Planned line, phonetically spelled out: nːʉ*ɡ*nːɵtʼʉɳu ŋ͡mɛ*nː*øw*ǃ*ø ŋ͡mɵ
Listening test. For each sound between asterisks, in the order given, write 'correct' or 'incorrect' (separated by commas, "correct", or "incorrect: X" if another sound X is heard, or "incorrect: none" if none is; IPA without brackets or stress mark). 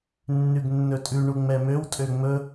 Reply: correct, incorrect: m, incorrect: tʼ